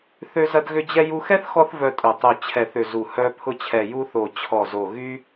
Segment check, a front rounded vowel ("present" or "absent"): present